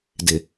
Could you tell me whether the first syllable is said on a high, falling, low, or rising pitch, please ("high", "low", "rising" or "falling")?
low